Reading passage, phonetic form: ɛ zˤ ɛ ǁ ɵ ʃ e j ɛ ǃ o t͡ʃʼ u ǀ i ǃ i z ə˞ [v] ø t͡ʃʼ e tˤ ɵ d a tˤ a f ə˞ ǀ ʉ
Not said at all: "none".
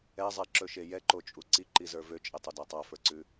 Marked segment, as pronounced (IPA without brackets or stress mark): v